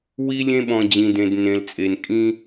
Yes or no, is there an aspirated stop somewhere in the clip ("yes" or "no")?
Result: no